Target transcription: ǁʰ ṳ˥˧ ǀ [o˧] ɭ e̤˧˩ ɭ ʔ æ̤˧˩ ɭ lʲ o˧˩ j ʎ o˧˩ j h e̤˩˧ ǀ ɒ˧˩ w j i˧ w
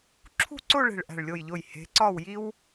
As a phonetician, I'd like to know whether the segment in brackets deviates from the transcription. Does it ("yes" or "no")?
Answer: yes